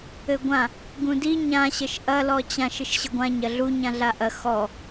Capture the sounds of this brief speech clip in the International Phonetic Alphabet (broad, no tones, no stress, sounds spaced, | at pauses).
ɘ ɡʷ ã | ɡ ũ d i ɲ ã ɕ ə ʃ ʔ ɐ l ɔ t͡ɕ ã ʃ ɘ ʃ ɕ ə ɡʷ ã ɲ ɐ ɮ u ɲ ã ɮ a ʔ ɐ x ɔ